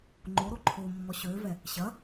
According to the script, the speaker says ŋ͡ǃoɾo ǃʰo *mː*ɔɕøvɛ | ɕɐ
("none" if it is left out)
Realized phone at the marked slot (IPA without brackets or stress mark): mː